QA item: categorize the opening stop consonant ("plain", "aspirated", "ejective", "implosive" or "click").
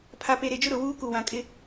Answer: aspirated